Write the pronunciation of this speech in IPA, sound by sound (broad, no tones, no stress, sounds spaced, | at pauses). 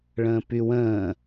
ɭ ə̃ː p y w ə̃ː